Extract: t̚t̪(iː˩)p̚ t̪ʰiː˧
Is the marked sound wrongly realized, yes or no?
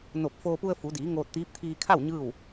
yes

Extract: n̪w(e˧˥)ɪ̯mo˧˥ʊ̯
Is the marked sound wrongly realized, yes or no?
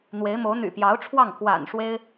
no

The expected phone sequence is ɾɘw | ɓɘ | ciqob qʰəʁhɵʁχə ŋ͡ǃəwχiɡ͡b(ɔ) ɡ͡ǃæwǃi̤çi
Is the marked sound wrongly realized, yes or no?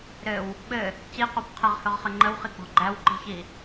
yes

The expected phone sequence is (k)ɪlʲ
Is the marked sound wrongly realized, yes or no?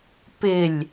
yes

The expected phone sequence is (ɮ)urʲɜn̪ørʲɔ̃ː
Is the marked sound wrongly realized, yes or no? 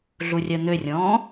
no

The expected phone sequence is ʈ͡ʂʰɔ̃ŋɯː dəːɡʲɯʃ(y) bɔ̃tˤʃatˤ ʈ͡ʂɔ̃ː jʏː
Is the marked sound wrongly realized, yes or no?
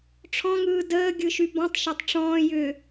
no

